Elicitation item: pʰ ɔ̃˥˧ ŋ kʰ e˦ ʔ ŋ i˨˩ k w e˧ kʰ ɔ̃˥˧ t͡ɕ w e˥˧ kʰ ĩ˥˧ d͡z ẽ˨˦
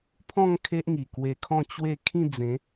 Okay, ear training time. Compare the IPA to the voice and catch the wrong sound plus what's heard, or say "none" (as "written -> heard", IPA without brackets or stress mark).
none